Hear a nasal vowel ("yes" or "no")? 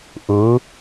no